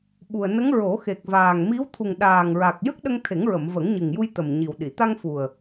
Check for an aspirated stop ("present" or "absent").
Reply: present